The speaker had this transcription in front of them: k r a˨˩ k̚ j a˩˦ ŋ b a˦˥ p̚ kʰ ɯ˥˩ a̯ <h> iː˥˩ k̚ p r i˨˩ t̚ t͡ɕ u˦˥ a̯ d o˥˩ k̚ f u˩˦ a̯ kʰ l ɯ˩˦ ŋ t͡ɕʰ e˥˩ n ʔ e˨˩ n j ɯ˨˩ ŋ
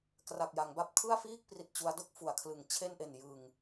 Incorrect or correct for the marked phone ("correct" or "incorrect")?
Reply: incorrect